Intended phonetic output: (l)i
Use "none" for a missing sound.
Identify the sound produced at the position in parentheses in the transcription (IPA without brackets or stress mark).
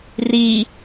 r